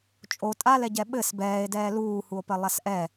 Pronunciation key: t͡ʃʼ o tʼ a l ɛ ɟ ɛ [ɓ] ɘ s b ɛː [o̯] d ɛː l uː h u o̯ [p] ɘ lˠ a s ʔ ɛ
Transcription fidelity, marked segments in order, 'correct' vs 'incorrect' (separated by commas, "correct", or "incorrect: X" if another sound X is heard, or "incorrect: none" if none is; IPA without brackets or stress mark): correct, incorrect: e̯, correct